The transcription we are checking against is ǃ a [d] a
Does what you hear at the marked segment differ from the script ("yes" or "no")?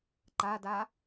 no